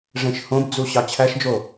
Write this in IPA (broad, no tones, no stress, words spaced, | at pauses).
ʐẽʃhõbd͡zu ɕɑt͡ɕʰæʃd͡ʒo